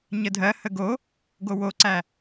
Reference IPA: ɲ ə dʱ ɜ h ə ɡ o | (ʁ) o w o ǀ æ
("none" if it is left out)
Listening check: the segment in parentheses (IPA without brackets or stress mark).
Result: ɡ